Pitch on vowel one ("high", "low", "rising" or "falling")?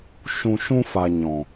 low